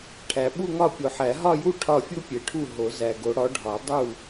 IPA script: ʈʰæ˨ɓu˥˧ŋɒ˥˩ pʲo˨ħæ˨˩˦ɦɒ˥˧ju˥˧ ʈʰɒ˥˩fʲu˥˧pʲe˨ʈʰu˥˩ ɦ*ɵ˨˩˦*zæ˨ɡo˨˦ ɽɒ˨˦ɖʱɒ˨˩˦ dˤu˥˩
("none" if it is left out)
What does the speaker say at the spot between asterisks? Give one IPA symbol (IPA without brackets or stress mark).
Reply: o˨˩˦